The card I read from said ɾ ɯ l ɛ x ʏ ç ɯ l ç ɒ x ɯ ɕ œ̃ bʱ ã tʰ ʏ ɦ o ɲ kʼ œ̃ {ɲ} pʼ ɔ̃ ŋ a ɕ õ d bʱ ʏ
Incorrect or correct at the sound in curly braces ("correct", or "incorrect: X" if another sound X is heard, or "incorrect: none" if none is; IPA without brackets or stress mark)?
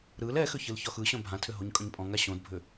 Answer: correct